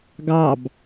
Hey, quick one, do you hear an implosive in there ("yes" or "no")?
no